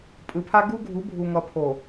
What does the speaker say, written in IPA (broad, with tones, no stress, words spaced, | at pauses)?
pʼɯ˨pʰa˦ ɡu˦ɡʱu˨˦ bʱu˨ŋʌ˨pʰo˨